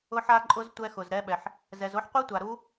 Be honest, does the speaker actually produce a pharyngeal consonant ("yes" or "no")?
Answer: yes